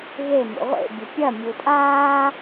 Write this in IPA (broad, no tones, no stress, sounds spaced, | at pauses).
ɣ e m ṵ ʁʷ ḛ bʲ ɘ pʲ ɐ mʲ u tʼ aː